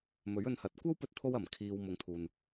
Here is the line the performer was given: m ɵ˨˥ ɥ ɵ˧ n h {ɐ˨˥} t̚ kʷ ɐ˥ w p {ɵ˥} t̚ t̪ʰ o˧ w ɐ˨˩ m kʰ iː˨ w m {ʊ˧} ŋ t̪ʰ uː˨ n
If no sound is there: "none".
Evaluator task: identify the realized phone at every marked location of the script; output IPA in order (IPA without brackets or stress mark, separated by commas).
ɐ˨˥, ɵ˧, ʊ˨